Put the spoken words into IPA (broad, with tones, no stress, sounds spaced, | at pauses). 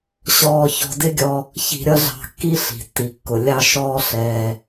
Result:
ɕ ɔː˧ ç ɔ̤˧ d ɪ˥ ɡʲ ɔ˧ | ç i̤˧ ɾʲ ʌ˥ ɮ ɑ̤˧ kː i˥ ɬ i̤˩ tː i˩ kː ʊ˩ lʲ ɑ˧ ʃ ɔː˧ ɬ ɛː˩